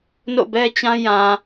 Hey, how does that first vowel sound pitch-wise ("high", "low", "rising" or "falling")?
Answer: falling